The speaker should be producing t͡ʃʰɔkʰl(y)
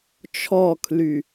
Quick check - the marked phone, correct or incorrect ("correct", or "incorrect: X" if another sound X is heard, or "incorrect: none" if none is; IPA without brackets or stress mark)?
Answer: correct